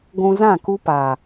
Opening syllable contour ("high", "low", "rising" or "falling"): low